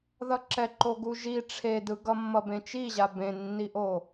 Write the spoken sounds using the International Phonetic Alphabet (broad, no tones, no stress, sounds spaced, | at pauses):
ð ʌ ǁ ɛ ǃ o ɡ u ʒ i ʈ͡ʂʰ e d ɯ ɡ ʌ mː ʌ b ẽ t͡ʃ i ʑ a b ẽ nː i ʔ o